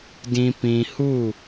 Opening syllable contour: low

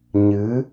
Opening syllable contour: rising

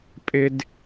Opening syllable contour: high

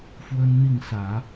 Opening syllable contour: high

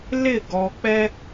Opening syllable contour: falling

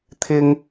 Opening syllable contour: high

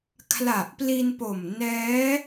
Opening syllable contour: low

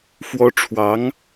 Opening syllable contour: high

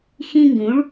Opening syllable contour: high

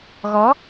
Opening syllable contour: rising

